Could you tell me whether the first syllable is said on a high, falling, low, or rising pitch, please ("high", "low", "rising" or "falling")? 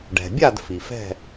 low